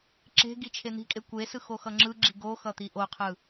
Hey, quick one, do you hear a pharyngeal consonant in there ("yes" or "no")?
no